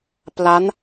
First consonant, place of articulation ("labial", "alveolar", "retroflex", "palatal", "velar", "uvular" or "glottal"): labial